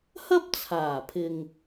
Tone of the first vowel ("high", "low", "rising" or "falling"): high